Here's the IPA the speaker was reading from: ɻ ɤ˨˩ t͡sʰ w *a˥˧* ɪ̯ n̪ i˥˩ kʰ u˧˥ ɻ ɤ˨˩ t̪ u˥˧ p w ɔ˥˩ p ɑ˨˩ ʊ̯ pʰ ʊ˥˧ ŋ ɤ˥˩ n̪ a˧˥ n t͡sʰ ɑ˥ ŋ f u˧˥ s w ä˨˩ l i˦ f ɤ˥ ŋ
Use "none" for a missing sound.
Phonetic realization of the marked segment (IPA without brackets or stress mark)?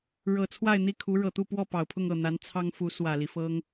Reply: a˥˧